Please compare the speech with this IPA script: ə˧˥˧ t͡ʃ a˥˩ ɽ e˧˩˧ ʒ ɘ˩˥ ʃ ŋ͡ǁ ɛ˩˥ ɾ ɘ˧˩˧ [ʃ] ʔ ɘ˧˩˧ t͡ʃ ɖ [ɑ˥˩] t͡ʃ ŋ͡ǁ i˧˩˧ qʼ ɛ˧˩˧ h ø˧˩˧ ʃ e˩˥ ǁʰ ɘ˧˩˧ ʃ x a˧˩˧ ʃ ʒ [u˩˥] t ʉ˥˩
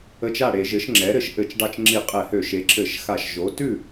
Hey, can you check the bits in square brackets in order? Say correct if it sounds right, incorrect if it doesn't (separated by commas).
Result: correct, correct, incorrect